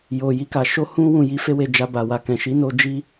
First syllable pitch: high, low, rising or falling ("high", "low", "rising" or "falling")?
low